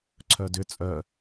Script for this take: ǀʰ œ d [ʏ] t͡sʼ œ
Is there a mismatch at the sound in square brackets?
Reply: no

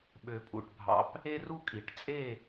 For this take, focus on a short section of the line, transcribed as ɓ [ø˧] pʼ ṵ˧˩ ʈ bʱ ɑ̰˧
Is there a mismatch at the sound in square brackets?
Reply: no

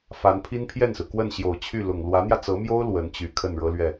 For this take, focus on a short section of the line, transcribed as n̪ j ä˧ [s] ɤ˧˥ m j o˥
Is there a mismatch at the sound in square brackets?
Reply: yes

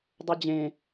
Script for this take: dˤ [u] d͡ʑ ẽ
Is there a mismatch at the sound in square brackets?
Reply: no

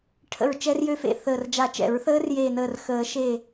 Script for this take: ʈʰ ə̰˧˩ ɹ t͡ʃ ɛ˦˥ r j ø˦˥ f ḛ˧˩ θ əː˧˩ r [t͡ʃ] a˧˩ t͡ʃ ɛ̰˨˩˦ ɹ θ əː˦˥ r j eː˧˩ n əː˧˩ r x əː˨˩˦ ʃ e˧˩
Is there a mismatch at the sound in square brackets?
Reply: yes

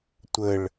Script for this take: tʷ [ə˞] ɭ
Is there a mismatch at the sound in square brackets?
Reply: yes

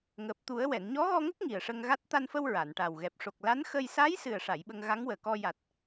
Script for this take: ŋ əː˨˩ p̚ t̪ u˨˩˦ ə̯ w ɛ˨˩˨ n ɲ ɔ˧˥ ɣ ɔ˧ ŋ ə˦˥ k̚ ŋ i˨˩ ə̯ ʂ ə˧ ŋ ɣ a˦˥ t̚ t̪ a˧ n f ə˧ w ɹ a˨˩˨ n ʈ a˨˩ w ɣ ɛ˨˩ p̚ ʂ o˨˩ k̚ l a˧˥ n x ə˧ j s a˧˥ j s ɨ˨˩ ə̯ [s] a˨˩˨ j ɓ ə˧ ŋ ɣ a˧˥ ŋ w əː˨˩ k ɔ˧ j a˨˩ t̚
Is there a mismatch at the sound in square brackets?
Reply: yes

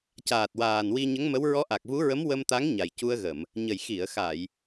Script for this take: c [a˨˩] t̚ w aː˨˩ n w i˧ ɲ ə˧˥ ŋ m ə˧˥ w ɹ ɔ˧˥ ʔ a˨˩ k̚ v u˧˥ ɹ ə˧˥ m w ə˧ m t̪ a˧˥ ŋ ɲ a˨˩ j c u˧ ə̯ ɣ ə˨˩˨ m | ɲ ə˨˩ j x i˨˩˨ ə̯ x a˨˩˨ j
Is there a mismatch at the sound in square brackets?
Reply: yes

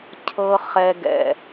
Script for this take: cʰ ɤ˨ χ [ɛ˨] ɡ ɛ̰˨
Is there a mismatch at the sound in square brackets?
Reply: no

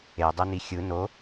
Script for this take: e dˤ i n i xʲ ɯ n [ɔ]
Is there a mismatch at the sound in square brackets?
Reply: yes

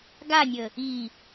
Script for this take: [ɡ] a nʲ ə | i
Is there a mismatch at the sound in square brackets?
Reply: no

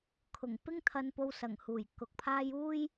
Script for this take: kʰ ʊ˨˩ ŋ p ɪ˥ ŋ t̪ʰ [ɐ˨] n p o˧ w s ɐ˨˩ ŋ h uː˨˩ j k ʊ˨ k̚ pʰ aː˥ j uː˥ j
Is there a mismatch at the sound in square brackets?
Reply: yes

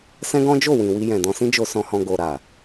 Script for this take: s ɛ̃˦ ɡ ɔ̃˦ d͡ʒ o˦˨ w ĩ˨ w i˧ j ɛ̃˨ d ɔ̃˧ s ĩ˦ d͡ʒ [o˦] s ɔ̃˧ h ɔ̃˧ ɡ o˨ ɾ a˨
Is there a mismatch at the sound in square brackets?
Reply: yes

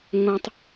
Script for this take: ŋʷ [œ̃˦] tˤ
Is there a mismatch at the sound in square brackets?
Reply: no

